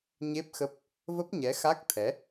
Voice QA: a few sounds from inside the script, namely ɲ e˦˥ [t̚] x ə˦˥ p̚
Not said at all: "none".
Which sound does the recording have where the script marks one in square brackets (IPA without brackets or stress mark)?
p̚